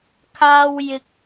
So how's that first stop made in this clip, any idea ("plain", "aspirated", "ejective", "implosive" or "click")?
aspirated